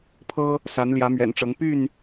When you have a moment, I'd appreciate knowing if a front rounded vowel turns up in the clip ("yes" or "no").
yes